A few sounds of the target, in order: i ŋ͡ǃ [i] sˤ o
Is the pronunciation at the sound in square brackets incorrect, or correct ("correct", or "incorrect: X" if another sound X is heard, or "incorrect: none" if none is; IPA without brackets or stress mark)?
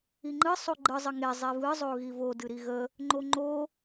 incorrect: ɨ